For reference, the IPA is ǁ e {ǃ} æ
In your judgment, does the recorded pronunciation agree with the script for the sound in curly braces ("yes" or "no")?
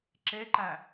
yes